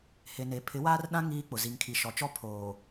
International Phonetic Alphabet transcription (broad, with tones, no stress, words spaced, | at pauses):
he˨ne˨ pʰɪ˨˦waː˦rɗã˦ ŋiː˦k͡pʊ˨ zi˨ŋkʰi˨ʃɔ˨t͡ʃɔ˦ pʰoː˨